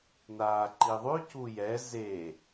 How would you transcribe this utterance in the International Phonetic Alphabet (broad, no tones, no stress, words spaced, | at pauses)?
naːǃiðˤʉ cujɛ ze